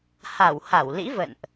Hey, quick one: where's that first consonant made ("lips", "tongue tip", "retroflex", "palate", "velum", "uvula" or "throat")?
throat